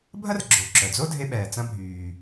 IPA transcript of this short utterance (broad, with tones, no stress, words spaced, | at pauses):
bʱɐ˥r ɡ͡ǁo˩ ǁœ˩d͡zo˥dʱe˧ ɓɛː˩t͡sɐ̃˧bʱyː˩